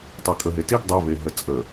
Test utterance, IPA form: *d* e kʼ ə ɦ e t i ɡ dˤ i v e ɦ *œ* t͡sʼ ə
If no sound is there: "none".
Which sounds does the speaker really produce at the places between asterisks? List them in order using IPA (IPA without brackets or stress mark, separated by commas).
tˤ, ə